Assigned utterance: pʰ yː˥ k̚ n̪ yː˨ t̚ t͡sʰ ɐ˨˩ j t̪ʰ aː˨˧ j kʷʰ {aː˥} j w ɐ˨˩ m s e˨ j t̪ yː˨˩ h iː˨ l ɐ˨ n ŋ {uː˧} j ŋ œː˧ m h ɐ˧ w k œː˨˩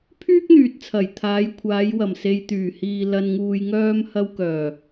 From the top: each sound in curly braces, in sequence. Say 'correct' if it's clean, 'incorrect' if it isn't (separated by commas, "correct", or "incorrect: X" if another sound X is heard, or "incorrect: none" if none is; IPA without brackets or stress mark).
incorrect: aː˨˧, incorrect: uː˨